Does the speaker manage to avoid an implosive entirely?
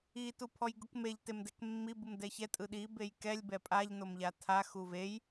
no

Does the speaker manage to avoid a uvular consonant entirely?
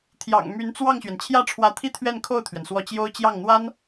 yes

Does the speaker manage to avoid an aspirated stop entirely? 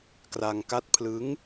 no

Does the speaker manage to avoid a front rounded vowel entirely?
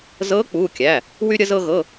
no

